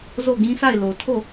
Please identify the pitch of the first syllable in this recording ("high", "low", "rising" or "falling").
falling